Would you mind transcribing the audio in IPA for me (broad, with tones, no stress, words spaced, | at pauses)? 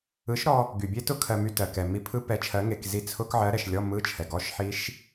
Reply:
ɯ˨˥ʃɾɔ˧ | ɡy˩bʲe˦˥tʊ˦˥ kʰɜ˧my˧tɜ˩kɛ˩ mi˧pʰɯ˦˥ pɛ˨˥t͡ʃʰɜ˨˥ ŋe˧kzi˦˥ t͡sʰʊ˦˥k ʕɜ˨˥ɾɛ˩ʃlʲɔ˧˥˧ mɯ˧˥˧t͡ʃʰɛ˩ ɡɔ˧˥˧ʃħi˦˥ʃ